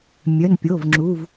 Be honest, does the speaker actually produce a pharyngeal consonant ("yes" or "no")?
no